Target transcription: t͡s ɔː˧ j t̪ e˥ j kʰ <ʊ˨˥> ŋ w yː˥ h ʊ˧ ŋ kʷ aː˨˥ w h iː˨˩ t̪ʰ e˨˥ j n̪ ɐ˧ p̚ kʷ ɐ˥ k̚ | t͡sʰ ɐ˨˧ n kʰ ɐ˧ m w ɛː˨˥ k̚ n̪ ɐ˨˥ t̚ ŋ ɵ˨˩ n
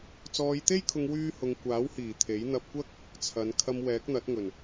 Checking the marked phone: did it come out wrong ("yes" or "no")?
yes